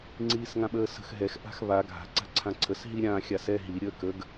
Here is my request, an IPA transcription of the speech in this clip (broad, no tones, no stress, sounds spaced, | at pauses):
ŋ͡ǀ iː s ŋ ã ɓ əː s ə̤ x ɦ ɛ x ʔ a̤ x β a ɡʱ a̤ ǀ a̤ ǀʰ ã ǀʰ ə s ɦ i ɾʲ ã xʲ a s ɛ ɦ i ɾʲ əː k ə ɡ